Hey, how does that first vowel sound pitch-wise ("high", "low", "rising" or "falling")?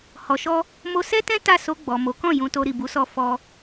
low